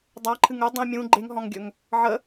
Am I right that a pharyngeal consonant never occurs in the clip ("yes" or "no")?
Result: no